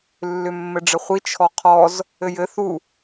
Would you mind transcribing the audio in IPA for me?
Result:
lː ʏ mː ɘ ɖ͡ʐ ɘ χʷ i t͡ʃʰ ɔ qʰ ɔ z | ɘ j ɘ θ u

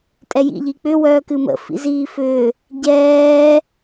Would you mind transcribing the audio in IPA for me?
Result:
tʼ ɛ j ḭ ʎ i k͡p ʏ w œː k ɨ m ə̰ f ḭ z iː f ʏː | ɟ ɛː

